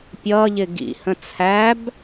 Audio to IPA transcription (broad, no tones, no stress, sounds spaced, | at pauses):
pʲ ʌː ʎ ɪ ɡ ḭ h ə̃ t͡sʰ æ b